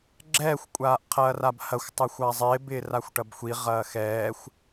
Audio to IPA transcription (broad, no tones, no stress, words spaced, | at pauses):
ɡ͡ǁɛːxʷ kʷʼaːʔqʰɐːrabhɐxʷ tˤɐxʷazˤɪːb ɪːraxʷʈɐbxʷi ʁɐːxɛːxʷ